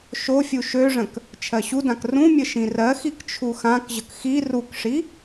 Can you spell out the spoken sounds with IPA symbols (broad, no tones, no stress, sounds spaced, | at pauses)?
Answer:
ʃ o fʲ u ʃ ø ʐ ə̃ k | t͡ʃʰ ɜ ɕ u d ã k r ũ mʲ ə ʃ ĩ r ɜ x i k t͡ʃʰ u x ã k ʑ ə k x i r u k ʂ i